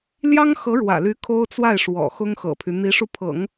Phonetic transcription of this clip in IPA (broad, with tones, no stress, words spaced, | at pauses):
ljɑ˥ŋxɤ˧˥ɻwä̰˨˩ly˧˥ kʰo˥ʊ̯t͡swa˥˩ɪ̯ʂwɔ̰˨˩ xʊ˥ŋxɤ̰˨˩pʰy˦ n̪i˧˥ʂu˧pʰɤ̰˨˩˦ŋ